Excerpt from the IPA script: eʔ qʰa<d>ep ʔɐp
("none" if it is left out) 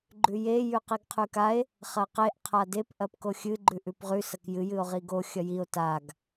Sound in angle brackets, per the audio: d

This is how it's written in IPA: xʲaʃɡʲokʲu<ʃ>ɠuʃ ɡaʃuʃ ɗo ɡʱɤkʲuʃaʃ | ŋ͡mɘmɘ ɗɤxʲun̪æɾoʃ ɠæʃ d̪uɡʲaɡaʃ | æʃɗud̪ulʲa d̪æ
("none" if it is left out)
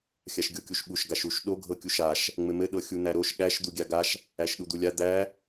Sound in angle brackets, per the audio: ʃ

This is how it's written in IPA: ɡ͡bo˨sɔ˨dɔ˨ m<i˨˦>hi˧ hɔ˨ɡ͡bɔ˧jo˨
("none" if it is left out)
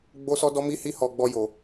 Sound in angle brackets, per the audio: i˨˦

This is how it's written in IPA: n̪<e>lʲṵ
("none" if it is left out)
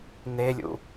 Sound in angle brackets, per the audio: e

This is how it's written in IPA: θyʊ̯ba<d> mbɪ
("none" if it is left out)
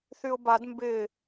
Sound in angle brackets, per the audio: d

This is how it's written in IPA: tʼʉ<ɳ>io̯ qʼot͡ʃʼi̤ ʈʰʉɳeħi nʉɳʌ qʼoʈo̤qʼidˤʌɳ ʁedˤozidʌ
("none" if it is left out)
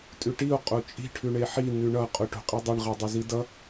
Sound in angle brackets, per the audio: ʈ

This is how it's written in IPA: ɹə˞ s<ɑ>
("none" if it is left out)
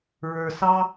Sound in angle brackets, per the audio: ɑ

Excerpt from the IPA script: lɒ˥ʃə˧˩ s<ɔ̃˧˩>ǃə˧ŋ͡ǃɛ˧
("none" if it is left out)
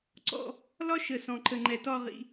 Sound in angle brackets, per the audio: ɔ̃˧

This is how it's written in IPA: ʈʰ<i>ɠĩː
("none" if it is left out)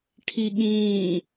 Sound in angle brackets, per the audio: i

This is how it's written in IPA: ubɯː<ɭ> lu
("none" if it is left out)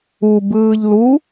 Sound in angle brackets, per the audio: ʎ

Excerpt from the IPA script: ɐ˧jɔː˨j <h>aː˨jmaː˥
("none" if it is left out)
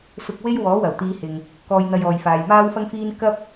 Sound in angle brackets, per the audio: f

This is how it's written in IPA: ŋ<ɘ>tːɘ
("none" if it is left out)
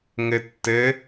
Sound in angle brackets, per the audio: ɘ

